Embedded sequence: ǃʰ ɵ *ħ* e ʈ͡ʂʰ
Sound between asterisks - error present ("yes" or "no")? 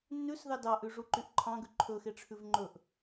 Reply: yes